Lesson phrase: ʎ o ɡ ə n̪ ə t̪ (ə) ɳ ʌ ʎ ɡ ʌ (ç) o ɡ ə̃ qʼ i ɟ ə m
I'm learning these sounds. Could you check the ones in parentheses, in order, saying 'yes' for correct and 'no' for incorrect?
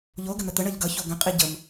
yes, yes

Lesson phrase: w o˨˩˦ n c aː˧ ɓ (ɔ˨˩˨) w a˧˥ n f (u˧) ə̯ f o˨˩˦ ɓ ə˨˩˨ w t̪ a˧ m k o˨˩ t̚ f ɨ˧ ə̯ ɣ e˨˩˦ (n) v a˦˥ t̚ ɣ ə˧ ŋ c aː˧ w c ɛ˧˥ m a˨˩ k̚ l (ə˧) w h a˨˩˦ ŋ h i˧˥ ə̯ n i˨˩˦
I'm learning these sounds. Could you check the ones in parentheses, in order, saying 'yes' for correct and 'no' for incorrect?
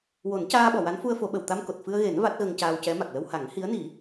yes, yes, yes, yes

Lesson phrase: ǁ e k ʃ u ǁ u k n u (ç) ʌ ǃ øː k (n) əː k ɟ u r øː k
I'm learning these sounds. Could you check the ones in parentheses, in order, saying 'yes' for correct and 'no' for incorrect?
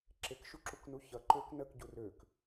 yes, yes

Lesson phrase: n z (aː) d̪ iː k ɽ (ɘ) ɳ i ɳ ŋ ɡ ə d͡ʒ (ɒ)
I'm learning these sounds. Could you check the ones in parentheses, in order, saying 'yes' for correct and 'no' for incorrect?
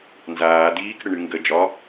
yes, yes, yes

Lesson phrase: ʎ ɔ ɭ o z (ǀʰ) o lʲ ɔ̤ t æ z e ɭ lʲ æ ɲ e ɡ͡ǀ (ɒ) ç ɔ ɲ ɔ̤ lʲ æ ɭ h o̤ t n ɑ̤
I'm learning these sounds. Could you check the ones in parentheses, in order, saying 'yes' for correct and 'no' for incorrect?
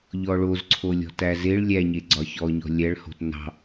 yes, yes

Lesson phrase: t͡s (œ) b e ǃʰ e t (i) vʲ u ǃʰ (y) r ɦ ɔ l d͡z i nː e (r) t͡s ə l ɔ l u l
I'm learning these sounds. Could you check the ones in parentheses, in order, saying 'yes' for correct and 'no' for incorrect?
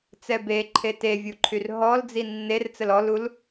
no, no, yes, yes

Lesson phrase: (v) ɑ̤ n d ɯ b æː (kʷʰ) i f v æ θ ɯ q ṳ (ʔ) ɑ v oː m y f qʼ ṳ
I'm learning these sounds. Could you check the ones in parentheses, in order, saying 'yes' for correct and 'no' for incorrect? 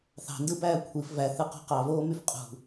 no, yes, no

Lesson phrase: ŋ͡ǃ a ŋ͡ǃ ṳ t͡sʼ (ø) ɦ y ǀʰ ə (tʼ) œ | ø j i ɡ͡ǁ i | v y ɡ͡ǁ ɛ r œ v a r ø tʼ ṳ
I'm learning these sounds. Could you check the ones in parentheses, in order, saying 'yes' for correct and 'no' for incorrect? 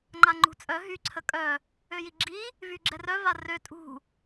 no, no

